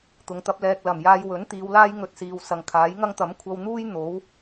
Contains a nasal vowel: no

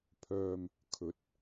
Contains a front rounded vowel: yes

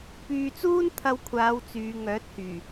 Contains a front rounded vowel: yes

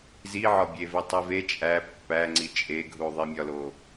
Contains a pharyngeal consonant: yes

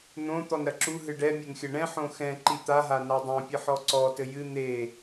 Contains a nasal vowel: yes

